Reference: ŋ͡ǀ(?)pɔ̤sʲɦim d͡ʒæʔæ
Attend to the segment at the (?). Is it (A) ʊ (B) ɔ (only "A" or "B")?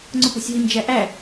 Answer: A